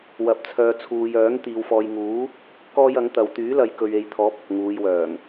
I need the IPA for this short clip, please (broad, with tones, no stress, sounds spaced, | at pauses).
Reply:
w ɐ˨ p̚ t͡sʰ œː˨ t͡sʰ uː˨ j œː˨˥ ŋ t̪ iː˨ w f ɔː˨ j ŋ uː˨˥ | k ɔː˥ j ɐ˨˥ ŋ t̪ ɐ˨˧ w t̪ yː˨˥ l ɐ˨ j k ɵ˨ ɥ e˨ j t̪ʰ ɔː˨˥ p̚ ɐ˨ p̚ ŋ uː˨˧ j w œː˨˩ ŋ